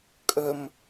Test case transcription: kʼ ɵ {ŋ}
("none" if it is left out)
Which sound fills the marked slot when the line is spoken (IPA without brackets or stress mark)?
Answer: m